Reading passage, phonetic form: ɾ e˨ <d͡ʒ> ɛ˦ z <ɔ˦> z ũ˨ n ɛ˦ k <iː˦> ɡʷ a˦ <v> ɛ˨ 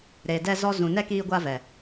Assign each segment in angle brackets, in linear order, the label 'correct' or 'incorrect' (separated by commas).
incorrect, correct, correct, correct